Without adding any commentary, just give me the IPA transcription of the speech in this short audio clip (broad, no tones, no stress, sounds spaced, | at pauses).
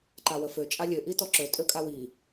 ǃ a w ə f ø t͡ʃʼ a lʲ ø ʔ i t ɔ ǁ ø tʼ ø kʼ a w i